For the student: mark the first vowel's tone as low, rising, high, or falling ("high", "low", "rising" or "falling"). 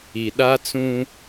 low